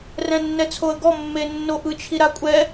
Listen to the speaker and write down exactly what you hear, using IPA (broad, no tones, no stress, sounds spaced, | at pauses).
r ɛ̃ nː ɛ t͡sʰ o ə̯ ɡ ɔ mː e nː o ʔ ɯ t͡ʃʰ i ɾ a kʷʼ ɛ